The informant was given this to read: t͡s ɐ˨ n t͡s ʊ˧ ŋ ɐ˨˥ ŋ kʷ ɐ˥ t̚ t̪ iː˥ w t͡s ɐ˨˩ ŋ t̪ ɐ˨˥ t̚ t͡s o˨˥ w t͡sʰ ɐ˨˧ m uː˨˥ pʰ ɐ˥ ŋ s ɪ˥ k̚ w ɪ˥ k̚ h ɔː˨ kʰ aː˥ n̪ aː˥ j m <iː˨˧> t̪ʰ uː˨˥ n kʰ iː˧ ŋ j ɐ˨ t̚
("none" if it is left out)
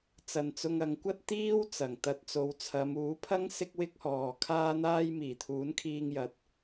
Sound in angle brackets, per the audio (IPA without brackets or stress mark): iː˨˩